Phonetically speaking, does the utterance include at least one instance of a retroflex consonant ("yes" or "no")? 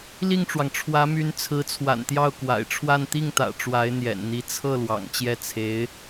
yes